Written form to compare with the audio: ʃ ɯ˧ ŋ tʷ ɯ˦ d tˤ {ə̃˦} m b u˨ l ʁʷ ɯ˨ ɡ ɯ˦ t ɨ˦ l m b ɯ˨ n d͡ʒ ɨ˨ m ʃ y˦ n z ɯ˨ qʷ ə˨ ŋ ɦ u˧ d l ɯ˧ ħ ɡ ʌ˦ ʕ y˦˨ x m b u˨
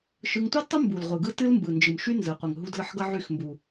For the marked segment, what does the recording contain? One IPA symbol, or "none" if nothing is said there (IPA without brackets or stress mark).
ə˦